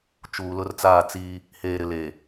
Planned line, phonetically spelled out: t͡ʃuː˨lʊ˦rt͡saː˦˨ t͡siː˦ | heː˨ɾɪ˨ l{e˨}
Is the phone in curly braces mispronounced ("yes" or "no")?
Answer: no